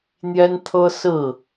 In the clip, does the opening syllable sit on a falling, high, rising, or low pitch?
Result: high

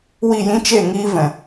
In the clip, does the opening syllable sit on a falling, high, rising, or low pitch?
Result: falling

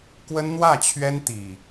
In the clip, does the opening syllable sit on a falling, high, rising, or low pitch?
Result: high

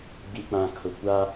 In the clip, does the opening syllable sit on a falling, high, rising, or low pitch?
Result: low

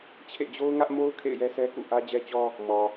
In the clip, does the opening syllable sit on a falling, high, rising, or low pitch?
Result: falling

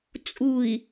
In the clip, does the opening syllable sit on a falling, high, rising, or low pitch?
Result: low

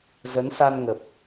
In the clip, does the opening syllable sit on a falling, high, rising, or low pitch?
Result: rising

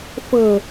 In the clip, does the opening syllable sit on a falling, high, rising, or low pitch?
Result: low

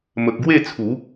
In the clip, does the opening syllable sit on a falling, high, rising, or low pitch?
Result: high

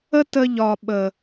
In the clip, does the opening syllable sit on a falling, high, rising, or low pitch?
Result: high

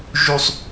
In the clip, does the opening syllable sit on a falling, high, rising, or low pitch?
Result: low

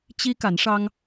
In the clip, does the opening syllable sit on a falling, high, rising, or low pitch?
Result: high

